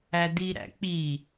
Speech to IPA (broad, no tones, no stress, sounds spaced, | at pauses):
æ d i ɾ æ̰ k͡p i